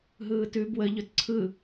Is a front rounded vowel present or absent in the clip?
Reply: absent